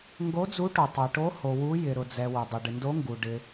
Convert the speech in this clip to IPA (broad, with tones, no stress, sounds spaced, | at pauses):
ŋ ɡ o˨˦ d͡z u˨˦ ʈ o˩ tˤ ɛ˩ ʈ o˨˦ h o˩ w u˨˦ j ɪ˩ ɾ ʊ˩ d͡z ɛ˩ w ʊ˩ dˤ ɪ˩ ɖ ɪ˩ n d o˨˦ ŋ ɡ u˩ ɖ ɪ˩